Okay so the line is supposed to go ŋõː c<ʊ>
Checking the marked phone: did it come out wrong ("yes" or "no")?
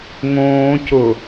no